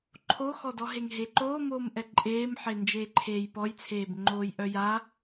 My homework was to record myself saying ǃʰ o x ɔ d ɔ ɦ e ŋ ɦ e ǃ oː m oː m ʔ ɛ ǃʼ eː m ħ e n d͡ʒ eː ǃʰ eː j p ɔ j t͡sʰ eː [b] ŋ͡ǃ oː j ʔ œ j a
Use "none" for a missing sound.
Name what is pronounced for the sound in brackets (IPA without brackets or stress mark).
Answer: b